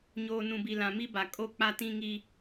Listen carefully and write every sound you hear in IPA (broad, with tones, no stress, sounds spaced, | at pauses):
ɲ oː˨ n ũ˨ b i˨ l ã˨ m i˦ b a˨ kʼ o˦˨ k͡p a˦ t ĩ˦ ŋ i˦